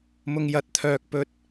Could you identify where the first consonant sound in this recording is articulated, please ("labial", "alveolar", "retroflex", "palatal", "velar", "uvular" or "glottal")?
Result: labial